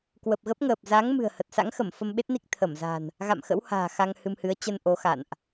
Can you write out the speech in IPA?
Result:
kwə˨˩p̚ɣə˦˥p̚ŋəː˨˩p̚ za˨˦ŋ mɨ̤˨˩ə̯hə˨˩t̚sa̰˧˥ŋxə˧˩m fə˧mɓe˦˥t̚ni˦˥k̚ t̪ʰə˧˩mza̤˨˩n | ɣa̰˧˨mxə̰˧˥w ha̤ː˨˩xa˧ŋ hɨ˧mhɨ˨˦ə̯ t͡ɕə˧n ʔo˨˦xa̰˧˨nʔ

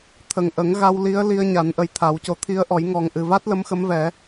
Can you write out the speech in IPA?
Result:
t̪ʰə˨˩ŋʔə˨˩˦ŋ ɣa˧wli˧˥ə̯ li˧ə̯ɲa˨˩˦n ʔə˧jt̪ʰa˨˩˦wco˧ t̪ʰi˧˥ə̯ʔɔ˨˩˦j ŋɔ˨˩ŋʔɨ˨˩va˦˥t̚ lə˧˥mxə˧˥mvɛ˨˩˦

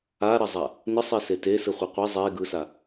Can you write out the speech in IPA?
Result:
aɾɐzˤa | nəsˤise tesɯχʷi qʷe zˤe ɡɯsa

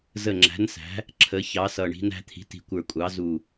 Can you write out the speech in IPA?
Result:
zə˨˩ŋ͡ǁæ̤˩˧nsæ̤˩˧ | ǁʰə˩˧çɑ˩˧sʌ˨˩ɳi̤˩˧n æ̤˩˧t̪ʰi̤˩˧ti̤˨˩kʷə˞˨˩ kʷʼɑ˩˧zu˨˩

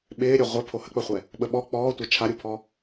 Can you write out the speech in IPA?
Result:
ɓɪː ɾʲøʁʷɛ pʰohək͡pəχʷɛ | ɓəɓɔ k͡pɔːtʷɛ t͡ʃʰaɾʲupʰɔ

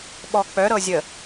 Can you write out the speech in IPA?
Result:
ɓɔk͡pœ ɾɤzʲə

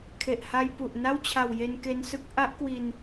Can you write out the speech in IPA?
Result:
kʰe˨˩ʔha˧jpu˨˩ʔ na˥˩wt͡ɕʰa˨˩w je˧nke˧nsɯ˦˥k̚ ʔa˦˥ʔkwi˧n

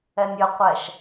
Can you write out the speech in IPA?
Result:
ɛnʲɾʲʌqʷɛʃ

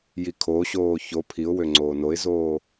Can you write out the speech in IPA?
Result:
jikʰoɕoː ço pʰiʊ̯wø ŋ͡ǀoːnoɪ̯zoː

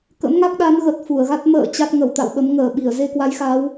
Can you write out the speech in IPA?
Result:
kə̰˧˥mŋa˦˥k̚ɗa˨˦n ɣə˨˩t̚ fu˧˩ə̯ɣa˦˥t̚ mə̰ː˧˨ t͡ɕa˦˥t̚ŋə˧˩wt̪a̰˧˨wɓə˨˦m ŋəː˧˩ɓi˧˩ə̯ ze˧kwa˨˦jxa˨˦w

